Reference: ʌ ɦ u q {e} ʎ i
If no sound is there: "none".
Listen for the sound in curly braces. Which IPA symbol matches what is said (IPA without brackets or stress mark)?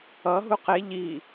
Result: e